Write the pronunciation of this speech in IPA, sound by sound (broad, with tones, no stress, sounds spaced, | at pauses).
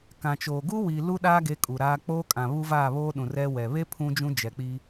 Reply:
k ã˨ t͡ʃ oː˨ ɡ u˦ w i˨ l u˦ ɗ aː˦ ɡ e˨˦ kʼ u˨ ɾ aː˦ k͡p oː˦ kʼ ã˨ β u˦ v aː˦˨ β oː˦ ɗ ũ˨ r ɛ˦ w ɛ˨ β e˦ pʰ ũ˦ d͡ʒ ũ˦ d͡ʒ ɛ˨ k͡p i˦